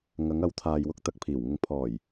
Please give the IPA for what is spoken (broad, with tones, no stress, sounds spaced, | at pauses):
ŋ ɐ˨˧ ŋ ɐ˨˧ w t̪ʰ aː˨ j w ʊ˥ k̚ t̪ ɐ˨ k̚ pʰ iː˨˩ w ŋ ʊ˨ ŋ pʰ ɔː˨˩ j